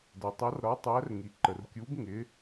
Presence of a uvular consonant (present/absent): absent